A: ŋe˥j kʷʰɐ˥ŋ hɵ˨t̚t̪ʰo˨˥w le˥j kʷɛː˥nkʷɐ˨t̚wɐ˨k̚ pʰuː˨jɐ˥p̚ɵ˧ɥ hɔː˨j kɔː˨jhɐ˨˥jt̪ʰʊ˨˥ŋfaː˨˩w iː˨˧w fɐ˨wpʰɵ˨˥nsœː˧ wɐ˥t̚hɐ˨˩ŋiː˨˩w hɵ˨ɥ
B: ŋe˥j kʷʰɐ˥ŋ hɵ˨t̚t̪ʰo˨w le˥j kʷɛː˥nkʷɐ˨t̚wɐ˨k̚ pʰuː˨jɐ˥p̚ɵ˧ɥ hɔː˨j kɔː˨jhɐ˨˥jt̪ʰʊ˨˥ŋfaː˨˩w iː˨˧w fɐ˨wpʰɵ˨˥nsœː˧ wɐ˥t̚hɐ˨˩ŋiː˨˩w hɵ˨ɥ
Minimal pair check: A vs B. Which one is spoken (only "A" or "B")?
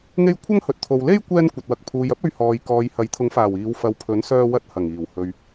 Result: B